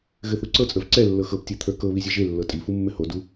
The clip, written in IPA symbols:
ɣ ɘ θ u ǀ ɤ t͡sʼ ə˞ v ǀ ɛ lː ɤ x ɤ p tʲ ɤ t̪ʰ ə˞ k ɤ β i zʲ ɛ ʒ e lː ɤ tʼ i f u mː ɘ h o d u

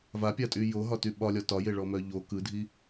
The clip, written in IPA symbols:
v a pʲ a tʼ y j o ɦ ɒ t y ɓ ɒ lʲ ɒ t ɒ j e ɭ ɔ m œ ʎ o k ɯ dʱ i

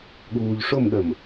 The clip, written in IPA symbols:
ɠ uː ʎ ʂ ʊ m ɠ ə m

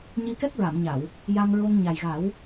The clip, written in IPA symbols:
ɲ i˧ k ɛ˦˥ k̚ ɹ a˨˩˨ m ɲ a˨˩˨ w | j a˧ ŋ ɹ o˧ ŋ ɲ a˨˩ j ɣ a˨˩˦ w

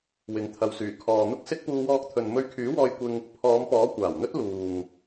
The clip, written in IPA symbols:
w ɪ˨ ŋ t̪ʰ ɐ˨ w s yː˨˩ kʰ ɔː˨ n̪ ʊ˥ k̚ s ɪ˥ k̚ p uː˧ w ɔː˧ k̚ t̪ʰ ɵ˨ n m ɵ˧ ɥ kʰ yː˨˥ w ɔː˧ j kʷ ɪ˧ ŋ | pʰ ɔː˨˧ m p ɔː˨˥ kʷ aː˨˩ w n̪ ɵ˥ t̚ l uː˨ ŋ

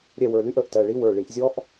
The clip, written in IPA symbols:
ɾʲ ɛ˦˨ w ə˞˩˧˩ l y˦˥ ʔ ə˧˩˧ ʔ t ɜ˩˧˩ ɭ i˦˥ w ə˞˩˧˩ ɭ i˧˩˧ ʔ zʲ ɔ˦˥ ʔ

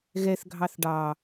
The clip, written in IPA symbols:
ɣ ɛ θ ɡʱ ɑ θ ɖ ɑ

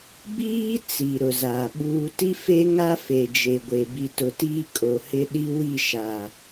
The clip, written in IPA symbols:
b iː˦ t͡s i˨ ɾ ʊ˨ z a˨ ɓ uː˦ t i˦ f e˦ ŋ a˦ f e˨ d͡ʒ e˨ ɡʷ e˨ b i˨ t ʊ˨ t iː˦ kʼ o˨ h ɪ˦ ɗ i˦ w i˦˨ ʃ a˨

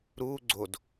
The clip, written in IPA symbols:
ɾ uː ɡ͡ǀ o d

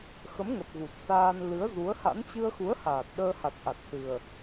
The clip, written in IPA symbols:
x ə˨˦ m ŋ ə˨˩ p̚ ɣ u˨˩ t̚ s aː˧ n l ɨ˨˦ ə̯ z u˨˦ ə̯ h a̰˧˥ n t͡ɕ ɨ˧ ə̯ x u˨˦ ə̯ h aː˨˩ t̚ ɗ əː˧ h a˨˩ t̚ ʔ a˨˩ k̚ s ɨ˨˩ ə̯

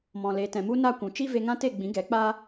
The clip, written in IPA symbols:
m ɔ̃˨ l e˨˦ t ɛ̃˨ m u˦ n a˦˨ kʷ ũ˨ t͡ʃ i˦ v e˧ ŋ ã˦ t e˦˨ ɡ͡b ĩ˨˦ ɡ ɛ˨˦ k͡p a˦

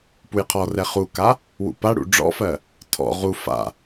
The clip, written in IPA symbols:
p u j qʰ ɔ r ɛ χ u k a | w ṵ p a ɽ ṵ ɖ͡ʐ ɔ̰ f ɜ | tʰ ɔ̰ ʁ u f a̰

